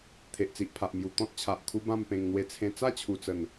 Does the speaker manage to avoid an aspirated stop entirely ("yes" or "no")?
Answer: no